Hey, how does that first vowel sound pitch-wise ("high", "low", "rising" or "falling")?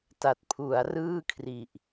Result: low